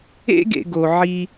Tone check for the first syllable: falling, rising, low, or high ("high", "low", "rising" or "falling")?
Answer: high